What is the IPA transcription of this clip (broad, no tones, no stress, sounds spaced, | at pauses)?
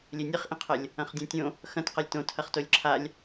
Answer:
lʲ e nʲ ɨ χ ʔ ĩ qʰ ɐ lʲ | ɐ̃ χ dʲ ẽ tʲ õ | x ɐ̃ t q ɐ lʲ t õ tʰ ɐ χ t o lʲ ǁʰ a lʲ